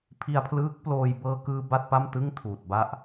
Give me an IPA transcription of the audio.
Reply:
pʰ i˧ a̯ pʰ l ɯː˦˥ k̚ p l oː˧ j b ɤː˧ k ɯː˧ b a˥˩ t̚ p a˥˩ m t ɯ˥˩ ŋ tʰ uː˨˩ t̚ b a˥˩ ʔ

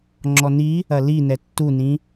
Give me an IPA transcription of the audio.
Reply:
ŋ͡ǁ ɔ n i | ɐ l i n ɛ tː u n ĩ

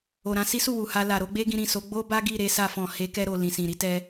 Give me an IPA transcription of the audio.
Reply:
o˨ ɾ ã˧ s i˦ s u˦˨ w u˨ h a˧ l a˨ ɾ o˨˦ ɡ͡b e˦ ɡ ĩ˧ ɾ ĩ˨ s o˨˦ ɡ͡b o˦ b a˦ ɡ i˦˨ ɾ e˨˦ s a˧ f ɔ̃˨ h e˨˦ k ɛ˧ ɾ o˨ l ĩ˨ s ĩ˨ ɾ i˨˦ t ɛ˧

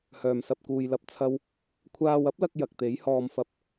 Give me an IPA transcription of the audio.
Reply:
h œː˨˩ m s ɐ˨ p̚ k uː˨ j l ɐ˧ p̚ t͡sʰ ɐ˥ w | kʷʰ aː˧ w ɐ˥ p̚ l ɐ˧ k̚ j ɐ˨ k̚ t̪ e˨˥ j h ɔː˧ m f ɐ˧ p̚

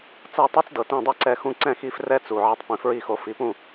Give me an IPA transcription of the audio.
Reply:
t͡s ɤ˥˩ tˤ ɛ˥ t͡s d ɤ˩ t ĩ˥˩ dˤ i˥˩ ǀ ɛ˧ x ũ˥˩ ǀ ɛ̃˥˩ x i˧ f r ɛ˥ t͡s u˩ ʕ ɛ˧ tˤ p ĩ˩ f ɹ i˥˩ x o˧ f i˩˥ p ũ˥˩

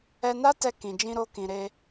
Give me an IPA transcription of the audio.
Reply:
ɛ˧ n a˦ t ɛ˧ k ĩ˨ d͡ʒ ĩ˧ ɾ o˧ k ĩ˨ ɾ e˧

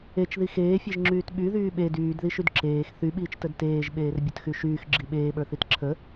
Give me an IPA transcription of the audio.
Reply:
e t͡ʃ ð i x eː fʲ e ʒ ŋ͡ǁ yː t ɓ y ð yː ɓ e d yː d ð i ʃ y d ǁ eː x θ y ɓ iː t͡ʃ t ə d t eː ʒ ɓ eː r bʲ ə t x y ʃ yː x ɡ͡ǁ i ɓ eː ɓ ə˞ θ i t ǁʰ ə

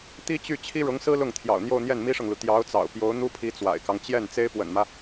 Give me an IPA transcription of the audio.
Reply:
t̪ i˥ t͡ɕ y˥˩ t͡ɕʰ i˥ ɻ ʊ˧˥ ŋ s ɹ̩˥ l ʊ˥˩ ŋ t̪ʰ j ɑ̰˨˩ ʊ̯ n̪ j o˥˧ ʊ̯ n̪ j ɛ˥˩ n m i˥ ʂ ɤ˨ ŋ l u˩ t̪ j ɑ˧˥ ʊ̯ t͡s ɑ̰˨˩ ʊ̯ p j o˧˥ ʊ̯ n̪ u˥ pʰ i˧˥ t͡s w a̰˨˩ ɪ̯ k ɑ˦ ŋ t͡ɕ j ɛ˥˩ n t͡s e˥ ɪ̯ p w ə̰˨˩ n m ä˦

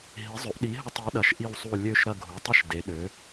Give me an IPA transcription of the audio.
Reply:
ɦ i˩˥ zˤ ø˩˥ ʔ ɗ i˩˥ ɦ ə˦˨ tˤ i˩˥ ɗ ɐ˩˥ ʃ ʔ i˦˨ w sˤ u˦˨ lʲ ø˦˨ ʃ ɾ ɐ˦˨ ɡʱ u˩˥ tˤ ə˦˨ ʃ d e˩˥ ɗ ø˩˥

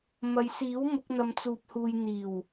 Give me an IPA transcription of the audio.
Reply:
m ɐ˨˧ j s iː˨˥ w m ʊ˨˥ k̚ n̪ ɐ˧ m t͡s uː˧ p̚ h uː˧ j n̪ iː˨˩ w

